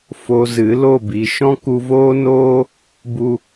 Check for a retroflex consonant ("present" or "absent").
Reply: absent